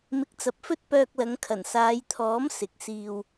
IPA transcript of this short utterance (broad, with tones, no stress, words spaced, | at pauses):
mɪ˨˥k̚t͡sɐ˨p̚fɵ˥t̚ pœː˧k̚lɐ˨˧ŋkʰɐ˨˩n saː˨˧jt̪ʰɔː˨˥m sɪ˨˥k̚siː˧w